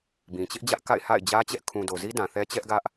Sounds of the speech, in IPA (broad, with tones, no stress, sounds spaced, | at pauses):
b ĩ˨ t͡ɕ ɪ˦ ʔ d͡ʑ ä˦ ʔ k a̰˦˨ ɪ̯ h a̰˦˨ ɪ̯ d͡ʑ ä˦ t͡ɕ ɛ˦ ʔ kʰ ũ˨ d o˨ z i˦ d ã˨ θ ɛ˦ t͡ɕ ɛ˦ ʔ ɡ ä˦ ʔ